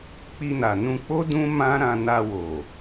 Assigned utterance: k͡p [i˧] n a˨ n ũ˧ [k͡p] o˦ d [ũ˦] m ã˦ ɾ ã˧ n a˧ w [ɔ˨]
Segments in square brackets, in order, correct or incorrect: correct, correct, correct, incorrect: o˨

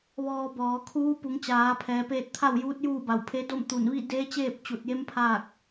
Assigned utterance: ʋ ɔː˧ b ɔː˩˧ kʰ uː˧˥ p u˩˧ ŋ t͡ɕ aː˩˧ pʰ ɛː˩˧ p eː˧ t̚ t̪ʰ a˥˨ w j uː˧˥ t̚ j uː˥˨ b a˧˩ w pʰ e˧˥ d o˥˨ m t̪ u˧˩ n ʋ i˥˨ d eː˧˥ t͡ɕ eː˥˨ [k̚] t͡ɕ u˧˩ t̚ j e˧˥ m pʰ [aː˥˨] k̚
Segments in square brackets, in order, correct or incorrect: incorrect: p̚, correct

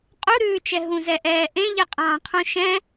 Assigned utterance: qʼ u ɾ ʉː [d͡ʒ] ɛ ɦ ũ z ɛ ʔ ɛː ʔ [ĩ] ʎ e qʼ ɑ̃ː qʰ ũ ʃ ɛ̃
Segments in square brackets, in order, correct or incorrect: incorrect: t͡ʃ, incorrect: ẽ

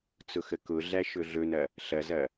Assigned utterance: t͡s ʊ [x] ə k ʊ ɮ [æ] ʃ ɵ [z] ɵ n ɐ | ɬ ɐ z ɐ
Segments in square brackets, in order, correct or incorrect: correct, correct, incorrect: ɮ

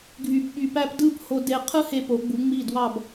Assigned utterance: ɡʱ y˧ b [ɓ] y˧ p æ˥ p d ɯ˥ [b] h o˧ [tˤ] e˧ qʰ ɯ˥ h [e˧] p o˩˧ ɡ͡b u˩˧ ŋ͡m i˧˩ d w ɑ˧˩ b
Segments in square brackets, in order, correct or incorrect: correct, correct, incorrect: d, correct

